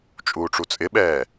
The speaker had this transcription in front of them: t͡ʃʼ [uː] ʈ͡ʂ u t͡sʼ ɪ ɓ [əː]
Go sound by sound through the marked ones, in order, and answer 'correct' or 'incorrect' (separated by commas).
correct, incorrect